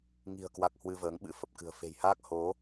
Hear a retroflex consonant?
no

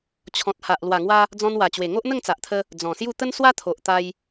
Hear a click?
no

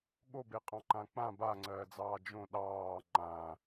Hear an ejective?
yes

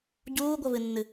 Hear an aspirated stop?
no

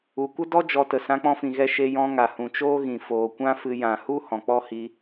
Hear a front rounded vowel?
no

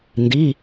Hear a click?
no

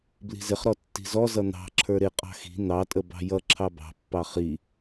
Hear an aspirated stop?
yes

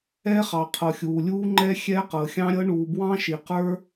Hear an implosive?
no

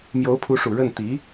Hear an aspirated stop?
yes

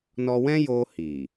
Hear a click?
no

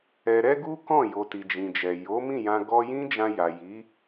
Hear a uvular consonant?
no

